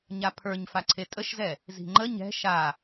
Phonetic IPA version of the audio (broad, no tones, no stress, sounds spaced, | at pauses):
ɲ a pʰ ə˞ ɲ f a ǀʰ e tʼ ə ʃ z ɛ | z i̤ ŋ͡ǃ ə ɲ ɛ̤ ʃ a